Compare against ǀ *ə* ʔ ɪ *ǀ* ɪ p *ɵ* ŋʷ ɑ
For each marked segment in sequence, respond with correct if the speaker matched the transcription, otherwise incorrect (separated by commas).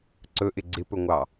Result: incorrect, incorrect, correct